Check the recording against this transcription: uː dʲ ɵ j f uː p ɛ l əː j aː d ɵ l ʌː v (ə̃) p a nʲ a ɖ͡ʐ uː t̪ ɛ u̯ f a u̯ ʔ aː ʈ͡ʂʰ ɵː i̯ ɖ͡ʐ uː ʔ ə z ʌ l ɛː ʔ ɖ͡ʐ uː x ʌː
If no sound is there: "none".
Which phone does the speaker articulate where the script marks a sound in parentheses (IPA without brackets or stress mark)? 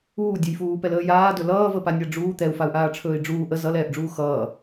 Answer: ə